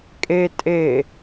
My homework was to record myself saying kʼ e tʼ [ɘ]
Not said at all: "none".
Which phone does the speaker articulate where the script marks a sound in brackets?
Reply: e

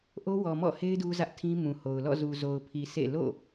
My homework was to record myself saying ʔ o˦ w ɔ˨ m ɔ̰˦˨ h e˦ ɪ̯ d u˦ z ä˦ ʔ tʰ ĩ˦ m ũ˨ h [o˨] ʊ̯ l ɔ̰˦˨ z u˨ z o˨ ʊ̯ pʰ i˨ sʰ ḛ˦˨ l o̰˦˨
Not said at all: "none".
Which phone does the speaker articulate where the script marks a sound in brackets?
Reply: o˨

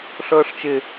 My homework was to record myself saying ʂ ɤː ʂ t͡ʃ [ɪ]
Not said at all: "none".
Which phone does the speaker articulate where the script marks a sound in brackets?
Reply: ɪ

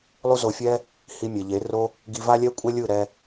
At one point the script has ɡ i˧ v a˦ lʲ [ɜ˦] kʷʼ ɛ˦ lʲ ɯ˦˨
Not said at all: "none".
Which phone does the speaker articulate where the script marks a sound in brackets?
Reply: ɛ˦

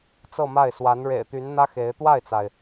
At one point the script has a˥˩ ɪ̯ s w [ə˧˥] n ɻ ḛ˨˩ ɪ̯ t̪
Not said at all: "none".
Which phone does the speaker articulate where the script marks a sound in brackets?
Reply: a˧˥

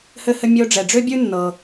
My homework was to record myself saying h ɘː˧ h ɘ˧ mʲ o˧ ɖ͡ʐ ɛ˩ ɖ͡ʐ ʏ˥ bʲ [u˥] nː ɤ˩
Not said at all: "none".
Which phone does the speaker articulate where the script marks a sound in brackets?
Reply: ʉ˥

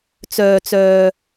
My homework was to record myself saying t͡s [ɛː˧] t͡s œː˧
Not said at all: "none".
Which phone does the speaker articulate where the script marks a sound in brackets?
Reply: œː˧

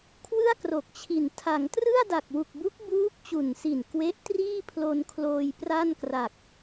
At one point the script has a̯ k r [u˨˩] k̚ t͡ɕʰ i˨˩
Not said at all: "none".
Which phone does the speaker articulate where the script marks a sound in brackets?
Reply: o˨˩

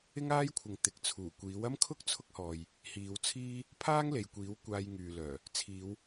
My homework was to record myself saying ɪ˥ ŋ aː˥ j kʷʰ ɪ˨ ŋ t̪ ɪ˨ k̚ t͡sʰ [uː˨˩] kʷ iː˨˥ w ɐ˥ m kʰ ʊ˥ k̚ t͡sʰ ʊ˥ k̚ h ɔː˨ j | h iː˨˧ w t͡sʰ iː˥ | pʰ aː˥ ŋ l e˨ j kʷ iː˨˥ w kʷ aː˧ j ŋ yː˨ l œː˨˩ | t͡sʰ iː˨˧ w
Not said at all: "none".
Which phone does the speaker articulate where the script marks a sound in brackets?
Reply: uː˨˩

